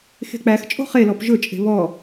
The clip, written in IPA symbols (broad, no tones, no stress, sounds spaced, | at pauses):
x e̤ k͡p æ x t͡ʃʼ o̤ χ e l ɔ p ʒ ɵ t͡ʃʼ e̤ β ɔ